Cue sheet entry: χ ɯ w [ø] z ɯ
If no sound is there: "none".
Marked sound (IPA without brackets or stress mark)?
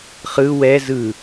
ɛ